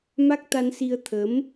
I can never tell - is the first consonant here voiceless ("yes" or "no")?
no